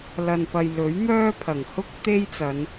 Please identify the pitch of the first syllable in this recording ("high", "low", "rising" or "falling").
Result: low